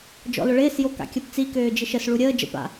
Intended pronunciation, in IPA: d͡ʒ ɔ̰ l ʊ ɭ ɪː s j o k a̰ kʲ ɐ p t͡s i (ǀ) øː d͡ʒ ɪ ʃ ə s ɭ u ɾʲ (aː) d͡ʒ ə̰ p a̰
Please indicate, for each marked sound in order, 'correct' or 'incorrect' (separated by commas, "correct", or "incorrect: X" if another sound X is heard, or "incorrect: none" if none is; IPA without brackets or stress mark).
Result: incorrect: k, incorrect: əː